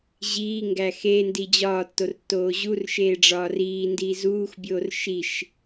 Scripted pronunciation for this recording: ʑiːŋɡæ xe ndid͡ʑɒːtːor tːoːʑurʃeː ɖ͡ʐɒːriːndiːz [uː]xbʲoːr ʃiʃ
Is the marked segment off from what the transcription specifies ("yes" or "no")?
no